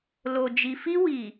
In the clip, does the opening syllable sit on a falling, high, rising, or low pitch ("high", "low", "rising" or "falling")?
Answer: low